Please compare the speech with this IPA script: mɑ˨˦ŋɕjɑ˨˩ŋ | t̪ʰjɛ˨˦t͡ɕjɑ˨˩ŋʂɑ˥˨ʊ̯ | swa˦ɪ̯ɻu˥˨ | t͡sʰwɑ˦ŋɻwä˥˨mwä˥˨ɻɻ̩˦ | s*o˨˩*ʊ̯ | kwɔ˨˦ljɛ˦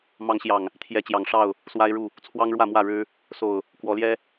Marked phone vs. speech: correct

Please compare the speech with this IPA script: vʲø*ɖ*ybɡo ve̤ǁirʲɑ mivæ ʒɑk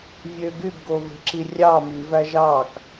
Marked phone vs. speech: incorrect: ɡ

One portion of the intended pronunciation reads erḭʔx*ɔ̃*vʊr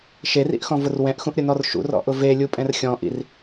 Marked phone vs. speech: correct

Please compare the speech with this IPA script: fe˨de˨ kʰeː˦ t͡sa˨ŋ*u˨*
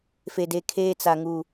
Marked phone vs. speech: correct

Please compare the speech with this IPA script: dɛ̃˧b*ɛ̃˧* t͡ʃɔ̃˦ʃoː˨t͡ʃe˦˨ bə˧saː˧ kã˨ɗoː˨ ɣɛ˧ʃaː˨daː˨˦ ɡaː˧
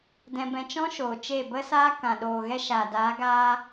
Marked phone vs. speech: correct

